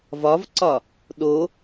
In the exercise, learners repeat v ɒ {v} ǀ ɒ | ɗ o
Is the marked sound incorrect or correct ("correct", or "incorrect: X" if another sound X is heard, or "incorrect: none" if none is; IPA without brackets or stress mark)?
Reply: correct